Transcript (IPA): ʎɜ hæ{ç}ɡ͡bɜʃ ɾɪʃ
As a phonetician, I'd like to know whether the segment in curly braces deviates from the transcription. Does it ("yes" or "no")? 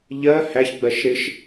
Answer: no